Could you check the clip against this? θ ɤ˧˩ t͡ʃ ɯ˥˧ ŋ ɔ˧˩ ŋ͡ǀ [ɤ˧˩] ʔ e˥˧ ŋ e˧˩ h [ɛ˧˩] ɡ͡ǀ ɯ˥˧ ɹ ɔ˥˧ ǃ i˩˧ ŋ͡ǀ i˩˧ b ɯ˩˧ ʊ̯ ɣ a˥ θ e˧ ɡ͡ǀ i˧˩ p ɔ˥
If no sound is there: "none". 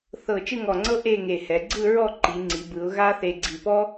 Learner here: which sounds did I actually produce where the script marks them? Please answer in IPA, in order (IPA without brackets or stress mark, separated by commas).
ɤ˥, ɛ˩˧